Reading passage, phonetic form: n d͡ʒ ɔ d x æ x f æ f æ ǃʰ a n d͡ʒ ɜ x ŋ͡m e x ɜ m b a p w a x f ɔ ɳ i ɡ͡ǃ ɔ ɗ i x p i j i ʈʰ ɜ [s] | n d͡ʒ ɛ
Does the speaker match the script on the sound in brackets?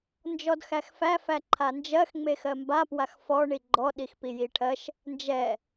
no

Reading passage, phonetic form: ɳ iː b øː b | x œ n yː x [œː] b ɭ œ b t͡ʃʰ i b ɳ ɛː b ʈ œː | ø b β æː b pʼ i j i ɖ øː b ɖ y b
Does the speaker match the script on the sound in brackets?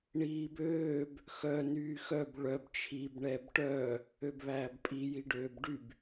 no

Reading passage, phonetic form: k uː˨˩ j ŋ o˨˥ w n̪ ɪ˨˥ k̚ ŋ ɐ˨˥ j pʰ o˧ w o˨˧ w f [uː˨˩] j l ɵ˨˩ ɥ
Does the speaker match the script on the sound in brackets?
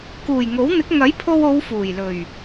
yes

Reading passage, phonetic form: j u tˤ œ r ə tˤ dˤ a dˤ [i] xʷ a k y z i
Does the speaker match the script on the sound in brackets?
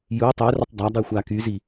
yes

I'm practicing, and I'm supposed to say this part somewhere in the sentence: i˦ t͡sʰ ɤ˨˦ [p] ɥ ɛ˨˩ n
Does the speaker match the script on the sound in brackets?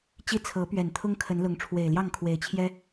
yes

